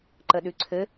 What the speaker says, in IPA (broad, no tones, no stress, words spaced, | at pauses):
ǃəɗʉǀʰɘ